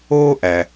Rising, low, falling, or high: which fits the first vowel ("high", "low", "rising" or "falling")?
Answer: high